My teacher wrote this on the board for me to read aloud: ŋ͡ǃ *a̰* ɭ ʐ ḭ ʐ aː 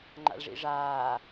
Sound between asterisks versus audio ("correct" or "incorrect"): correct